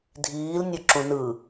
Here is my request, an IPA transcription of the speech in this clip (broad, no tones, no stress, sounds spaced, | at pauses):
dʱ iː l nʲ o ǁ ũ n ɯ